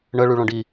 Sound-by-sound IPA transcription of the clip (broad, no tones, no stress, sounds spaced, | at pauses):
ɳ ə ɭ y ɭ ɔ̃ ɖ i